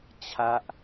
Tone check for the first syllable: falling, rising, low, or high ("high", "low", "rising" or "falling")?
high